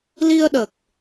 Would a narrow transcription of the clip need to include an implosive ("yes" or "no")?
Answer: yes